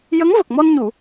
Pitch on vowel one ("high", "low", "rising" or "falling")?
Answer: rising